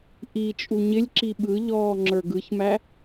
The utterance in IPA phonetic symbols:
ʔ i t͡ʃʼ u ɲ ɪ lʲ ǁ i ɓ ɯ ʎ ɔː ŋ͡ǁ ə˞ ɡ ɯ ç m æ

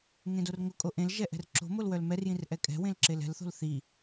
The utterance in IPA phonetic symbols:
ŋ ẽ d o r ŋ ʊ kʼ o ʔ ẽ l ʒ ɛ ʔ ɛ̤ r ǁ o̤ m o l w œ l m ɛ r j ĩ r ʔ ɛ kʼ ɛ̤ w ẽ l ǁ e l ɛ̤ l θ o̤ l θ i

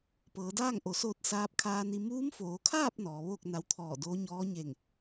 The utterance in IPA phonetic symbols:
p ɤː˩˧ d aː˥˨ ŋ ʔ o˩˧ s oː˧ t̚ s aː˧˥ p̚ kʰ aː˧ n i˧ m uː˧˥ m f oː˩˧ kʰ aː˥˨ p̚ n ɔː˩˧ ʋ oː˥˨ k̚ n a˧ w t̪ʰ ɔː˧˩ d oː˧˥ ɲ ɔː˧˥ ɲ e˧˩ ŋ

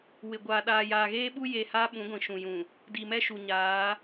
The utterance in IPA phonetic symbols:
w ɪ˨ ɡʷ aː˨ ɗ aː˨ j aː˨ ɣ eː˦ ɓ u˦ j e˨ h aː˦ ɓ ũ˨˦ ɡʷ ĩ˨ ʃ ũ˨ j ũ˨ | d i˨ m ɛ˦ ʃ u˨ ɲ aː˨˦

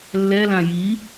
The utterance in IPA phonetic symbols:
lː ɛ l ã j i

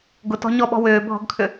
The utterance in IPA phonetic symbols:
ɡ ʊ t ɔ̤ ɲ ɔ ɓ ɔ̤ w ʏː bʱ ɔ̤ ɡ kʰ ʏ

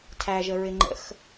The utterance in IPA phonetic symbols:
tʰ æ ʒ ə ɹ ɪ ŋ͡ǃ ə̰ x

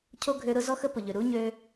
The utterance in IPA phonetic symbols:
cʰ o˥ ɡʱ ø˦ ɾ ʊ˥ z ɔ˥ x ə˥ p ʊ˨ ʎ ø˨ ɾ u˥ ɲ ø˦

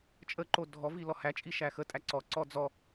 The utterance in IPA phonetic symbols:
t͡ʃʼ ə ǃ o dʱ ɔ v i l ɔ h æ t͡ʃʼ i ʃ æ x ə tʼ æ ǀ ɔ ǀ ɔ d͡z ɔ

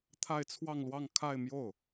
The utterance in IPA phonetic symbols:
t̪ʰ a˥˧ ɪ̯ t͡sʰ w ɑ˥˧ ŋ l w ɑ˥˧ ŋ kʰ a˥˧ ɪ̯ m j o˥˩ ʊ̯

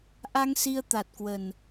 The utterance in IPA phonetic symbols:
ʔ a˧ ŋ s i˧ ə̯ t̪ a˨˩ t̚ k w ə˨˩ n

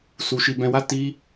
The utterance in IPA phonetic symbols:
s u˧ ʃ i˧ b ɛ̃˧ w a˦ t i˦

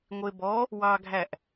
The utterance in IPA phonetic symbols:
ŋʷ e b ɔ | w ɑ ɡʱ æ ʔ

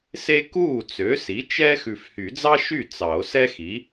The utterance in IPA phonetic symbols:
s e˥ k uː˥˩ t͡s ø˩˥ s i˩˥ t͡ʃ ɛː˥ x ʉ˨ f h y˨˩˦ d͡z ɑ˥ ʃ y˥˩ t͡s ɑ˨˩˦ o̯ s ɛ˥ x i˩˥

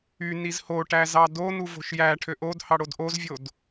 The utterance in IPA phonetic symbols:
y n i z h o ʈ æ z ɑ d o n u v o̤ ʃ j æ ʈʰ ø ʔ o d h ɑ ɽ o d ʔ o z vʲ o d

